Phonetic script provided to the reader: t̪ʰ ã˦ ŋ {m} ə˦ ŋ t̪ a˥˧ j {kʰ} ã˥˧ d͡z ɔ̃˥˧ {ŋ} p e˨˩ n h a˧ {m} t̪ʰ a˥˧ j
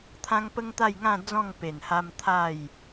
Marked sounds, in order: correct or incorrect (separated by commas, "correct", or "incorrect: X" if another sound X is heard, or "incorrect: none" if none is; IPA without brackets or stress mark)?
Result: incorrect: p, incorrect: ŋ, correct, correct